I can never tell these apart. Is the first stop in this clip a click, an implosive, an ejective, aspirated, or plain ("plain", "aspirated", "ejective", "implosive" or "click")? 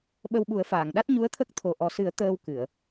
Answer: implosive